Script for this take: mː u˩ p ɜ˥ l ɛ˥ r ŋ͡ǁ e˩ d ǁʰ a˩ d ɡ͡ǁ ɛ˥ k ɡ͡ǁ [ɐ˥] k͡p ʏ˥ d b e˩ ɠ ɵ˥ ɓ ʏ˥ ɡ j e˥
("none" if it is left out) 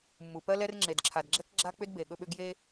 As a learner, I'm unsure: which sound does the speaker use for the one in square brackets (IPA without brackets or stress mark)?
a˥